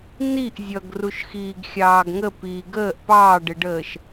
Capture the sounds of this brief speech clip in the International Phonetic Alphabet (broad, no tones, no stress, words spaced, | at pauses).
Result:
niʔ zʲʌɡruʃxiːɡ xʲɑːɡŋəpiː ɡəːʔ pɑːɖɪɖəːʃ